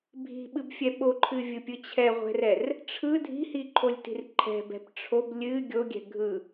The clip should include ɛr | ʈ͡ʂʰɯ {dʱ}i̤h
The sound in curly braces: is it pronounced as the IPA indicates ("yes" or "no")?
yes